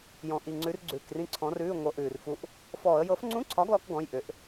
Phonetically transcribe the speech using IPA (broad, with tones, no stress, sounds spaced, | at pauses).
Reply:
j ɔ̃˨˩ ʔ i˨˩ ŋ͡ǀ ʉ˨˥ r ɡ͡ǀ ʉː˨˩ k r ĩ˧ ǀʰ ɔ̃˨˥ r ʉː˧˥˧ ŋʷ ɤ˨˥ ʔ ʉː˨˩ r f u˧ ʔ | f ɔː˧˩˧ ə̯ j ɤ˨˥ f ŋ͡ǀ ũ˧˥˧ ǀʰ ɒ˨˥ ɡ l ɔ˧ k ɡ ɔ̃˧˥˧ j ʔ ʏ˨˥ ʔ